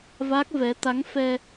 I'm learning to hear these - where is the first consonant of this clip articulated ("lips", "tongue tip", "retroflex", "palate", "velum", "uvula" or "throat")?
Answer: lips